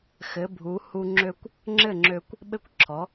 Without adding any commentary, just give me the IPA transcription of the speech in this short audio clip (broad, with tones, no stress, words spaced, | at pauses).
xɘ˩˥bʱu˩˥ hu˧ ŋ͡ǁø˥kʷ | ŋ͡ǁɘ˥˩ŋ͡ǁø˧kʷ | ɓɘ˥kʷǁʰɔ˩˥